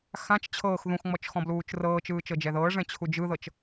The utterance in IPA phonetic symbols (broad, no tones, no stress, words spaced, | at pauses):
xãt͡ʃ t͡ɕʰɤːx ðũxŋ͡mɔt͡ʃ xɔ̃bluːt͡ʃrɤːt͡ʃɯː t͡ʃɤd͡ʒɛðɤːʐɛ̃ t͡ɕʰud͡ʒɯðɤt͡ʃ